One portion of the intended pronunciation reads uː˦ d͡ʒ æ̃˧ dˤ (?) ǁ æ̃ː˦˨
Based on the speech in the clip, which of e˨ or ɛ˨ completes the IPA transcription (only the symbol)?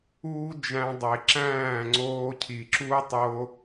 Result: e˨